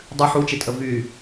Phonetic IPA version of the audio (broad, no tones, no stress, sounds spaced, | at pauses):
dˤ ɨ ħ u t͡ʃ e tʼ ə v y